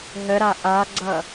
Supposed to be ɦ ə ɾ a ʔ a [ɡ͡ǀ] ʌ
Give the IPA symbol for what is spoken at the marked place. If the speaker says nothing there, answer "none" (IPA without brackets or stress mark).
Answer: ɡ͡ǀ